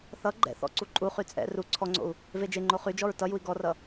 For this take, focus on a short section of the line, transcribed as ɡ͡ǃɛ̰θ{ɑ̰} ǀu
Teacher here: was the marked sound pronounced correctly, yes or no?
no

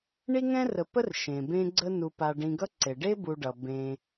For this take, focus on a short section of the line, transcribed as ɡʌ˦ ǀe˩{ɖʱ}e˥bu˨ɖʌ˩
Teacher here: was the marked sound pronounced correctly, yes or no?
no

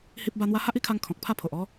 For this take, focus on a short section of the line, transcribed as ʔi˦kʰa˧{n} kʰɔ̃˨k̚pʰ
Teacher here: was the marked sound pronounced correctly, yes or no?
no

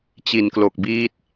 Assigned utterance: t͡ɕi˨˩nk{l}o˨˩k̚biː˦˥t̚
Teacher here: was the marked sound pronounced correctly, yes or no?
yes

